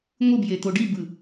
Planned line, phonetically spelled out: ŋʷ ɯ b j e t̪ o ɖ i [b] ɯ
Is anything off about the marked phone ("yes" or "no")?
no